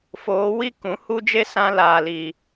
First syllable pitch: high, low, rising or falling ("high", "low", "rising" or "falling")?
rising